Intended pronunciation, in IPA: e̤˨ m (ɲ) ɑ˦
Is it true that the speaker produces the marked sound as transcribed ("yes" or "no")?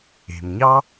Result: yes